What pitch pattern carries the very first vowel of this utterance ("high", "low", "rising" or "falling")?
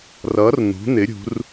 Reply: rising